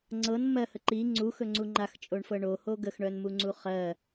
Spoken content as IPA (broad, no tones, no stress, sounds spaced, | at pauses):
ŋ͡ǀ ɤ n m ɜ h ə ǃ i ŋ͡ǀ u x ɵ ŋ͡ǀ u ŋ͡ǃ a x t͡ʃʼ o ɳ f ɤ ɳ o h o ɡ ə x ɳ œ n m u ŋ͡ǀ u χ ɜ